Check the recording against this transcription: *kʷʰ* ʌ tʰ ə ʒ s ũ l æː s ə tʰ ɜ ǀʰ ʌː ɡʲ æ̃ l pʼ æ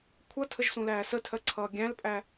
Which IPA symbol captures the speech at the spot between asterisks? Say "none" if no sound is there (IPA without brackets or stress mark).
kʷʰ